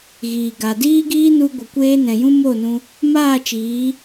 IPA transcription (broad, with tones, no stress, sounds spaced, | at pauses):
ɣ iː˨ ɡ a˨ d iː˦ ɡ iː˦ n u˧ ɡʷ ə˨ kʷ eː˧ n ɛ̃˨ j ũ˧ m o˦˨ n ũ˧ | m aː˦˨ t͡ʃ iː˨˦